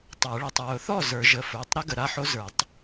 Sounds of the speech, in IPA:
tˤ ə˞˨˩˦ ɭ i˩˧˩ tˤ ɹ ʊ˨˩˦ θ ɔ˥˩ z ə˞˨˩˦ ʒ ə˩˧˩ f ə˞˩˧˩ tˤ ɾ i˦˥ ɡ ə˩˧˩ ɾ a˥˩ ħ o˦˥ z ə˞˨˩˦ tˤ

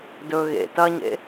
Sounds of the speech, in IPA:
d ɵ ɣ ḛ t ɐ ɲ ḛ

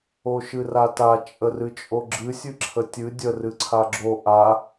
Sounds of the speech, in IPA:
o ʃ ɨ r a t a t͡ʃʼ ə r ɨ t͡ʃʼ o ɡ͡ǁ ɨ sʲ ɨ ǁʰ ə tʲ ɨ dʲ ə r ɨ ǀʰ a ɡ͡ǁ o ʔ a

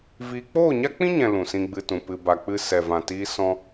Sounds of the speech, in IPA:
v iː˧ k͡p oː˦˨ ɲ a˦ k͡p ĩ˦ ɲ ɛ̃˨ l ũ˨ s ĩ˧ ɡ͡b ɨ˧ t ũ˨ p ɨ˨ b a˨ k͡p ɨ˧ s ɛ˨ v ã˨ t iː˧ s ɔ̃˦

